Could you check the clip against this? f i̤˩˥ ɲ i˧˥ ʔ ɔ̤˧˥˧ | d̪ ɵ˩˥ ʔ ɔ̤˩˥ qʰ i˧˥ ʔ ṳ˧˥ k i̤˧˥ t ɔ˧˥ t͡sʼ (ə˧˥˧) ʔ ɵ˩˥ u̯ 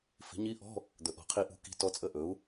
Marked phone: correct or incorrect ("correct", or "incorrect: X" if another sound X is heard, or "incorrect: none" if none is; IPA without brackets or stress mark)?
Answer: correct